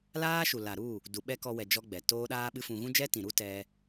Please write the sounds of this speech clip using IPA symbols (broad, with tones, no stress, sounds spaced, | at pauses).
l aː˦ ʃ u˨ l a˨ ɾ u˦˨ | d u˨ ɓ ɛ˦ k ɔ˧ w ɛ˨ d͡ʒ ɔ˦ ɡ͡b ɛ˨ t oː˦ ɗ aː˦ ɓ ɨ˦ f ũ˧ ɣ ũ˦ d͡ʒ ɛ˦ t ĩ˨ ɾ u˦ t ɛ˧